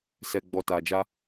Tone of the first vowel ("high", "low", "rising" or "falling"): low